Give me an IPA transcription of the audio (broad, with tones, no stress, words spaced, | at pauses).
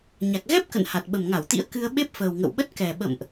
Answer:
ɲa˨˩k̚ɣɛ˦˥p̚kə̰˧˨n ha˨˩t̚ɓə˨˩mŋa˧˩wt̪ḭ˧˥ə̯ kɨ˧ə̯ ɓe˦˥p̚fəː˨˩wŋə̰˧˨wɓə˦˥t̚ kɛ˨˩ɓə̰˧˨mʔ